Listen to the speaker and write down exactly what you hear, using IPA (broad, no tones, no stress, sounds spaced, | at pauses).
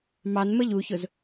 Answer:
m ɑ n m ə ʎ u ç ʊ z